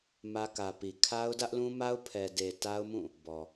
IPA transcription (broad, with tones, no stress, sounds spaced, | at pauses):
m ä˦ k ä˨ p i˨ kʰ a˦ ʊ̯ d ä˦ ʔ l ũ˦ m a˦ ʊ̯ pʰ ɛ˨ d e˨ t a˦ ʊ̯ m ũ˦˨ | b ɔ˨